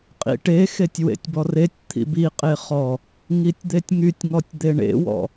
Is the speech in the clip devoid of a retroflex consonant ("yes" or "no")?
no